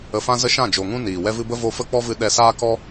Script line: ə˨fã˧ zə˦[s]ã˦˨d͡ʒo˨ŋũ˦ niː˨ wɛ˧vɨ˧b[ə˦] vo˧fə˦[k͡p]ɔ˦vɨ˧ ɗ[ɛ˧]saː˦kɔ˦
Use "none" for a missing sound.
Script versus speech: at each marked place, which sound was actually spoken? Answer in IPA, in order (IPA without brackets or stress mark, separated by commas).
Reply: ʃ, ə˦, k͡p, ɛ˧